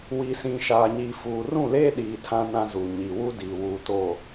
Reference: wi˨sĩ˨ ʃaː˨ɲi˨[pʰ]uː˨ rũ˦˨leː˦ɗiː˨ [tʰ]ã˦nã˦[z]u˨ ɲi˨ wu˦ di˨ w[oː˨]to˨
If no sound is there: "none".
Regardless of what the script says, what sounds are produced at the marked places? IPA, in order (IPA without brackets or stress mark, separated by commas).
f, tʰ, z, uː˨